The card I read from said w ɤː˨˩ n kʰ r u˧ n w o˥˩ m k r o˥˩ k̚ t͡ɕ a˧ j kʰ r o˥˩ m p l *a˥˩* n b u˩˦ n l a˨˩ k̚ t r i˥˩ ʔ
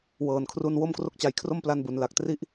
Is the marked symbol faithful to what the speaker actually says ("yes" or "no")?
no